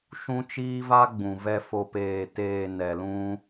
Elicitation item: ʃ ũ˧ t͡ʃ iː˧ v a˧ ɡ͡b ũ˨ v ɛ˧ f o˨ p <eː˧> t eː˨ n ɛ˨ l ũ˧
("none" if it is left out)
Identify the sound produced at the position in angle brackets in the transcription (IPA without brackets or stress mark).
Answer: eː˨